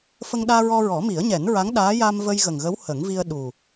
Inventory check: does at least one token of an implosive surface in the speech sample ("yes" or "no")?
yes